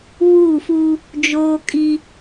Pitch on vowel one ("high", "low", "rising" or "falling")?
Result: falling